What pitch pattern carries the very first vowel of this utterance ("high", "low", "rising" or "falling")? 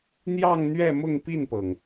falling